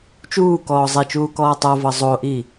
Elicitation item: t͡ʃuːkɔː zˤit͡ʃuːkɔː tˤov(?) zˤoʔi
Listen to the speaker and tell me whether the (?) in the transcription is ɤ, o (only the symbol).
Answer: ɤ